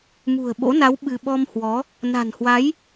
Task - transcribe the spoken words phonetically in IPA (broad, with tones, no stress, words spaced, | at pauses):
mṳ˨˩ə̯ɓo̰˧˥na˨˦w ɓɨ˧ ɓɔ˧mhwɔ˨˦ | na̤˨˩nhwa˨˦j